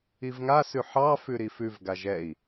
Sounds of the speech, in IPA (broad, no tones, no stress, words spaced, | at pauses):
ivŋasʉ ħɑfʉ ɾifʉvɡaʒ ɛi̯